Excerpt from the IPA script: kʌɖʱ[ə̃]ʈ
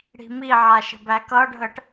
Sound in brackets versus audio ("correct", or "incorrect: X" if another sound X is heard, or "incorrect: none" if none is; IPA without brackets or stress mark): incorrect: ə